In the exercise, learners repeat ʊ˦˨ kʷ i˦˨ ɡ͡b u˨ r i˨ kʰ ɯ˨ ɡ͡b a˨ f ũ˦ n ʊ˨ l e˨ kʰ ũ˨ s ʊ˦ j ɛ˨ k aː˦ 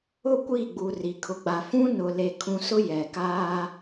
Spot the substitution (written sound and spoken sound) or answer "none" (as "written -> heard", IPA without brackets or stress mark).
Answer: ɯ˨ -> ʊ˨